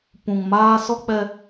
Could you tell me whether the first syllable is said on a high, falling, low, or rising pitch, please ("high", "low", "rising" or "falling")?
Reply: low